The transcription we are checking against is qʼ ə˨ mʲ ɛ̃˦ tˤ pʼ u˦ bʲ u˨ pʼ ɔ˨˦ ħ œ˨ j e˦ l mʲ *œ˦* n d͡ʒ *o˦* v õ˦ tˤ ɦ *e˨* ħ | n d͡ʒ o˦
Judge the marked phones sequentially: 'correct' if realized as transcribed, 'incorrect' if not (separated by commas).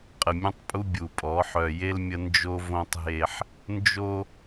incorrect, correct, incorrect